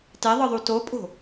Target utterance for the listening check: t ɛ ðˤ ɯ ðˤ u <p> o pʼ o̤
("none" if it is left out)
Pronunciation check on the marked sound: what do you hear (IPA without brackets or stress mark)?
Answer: t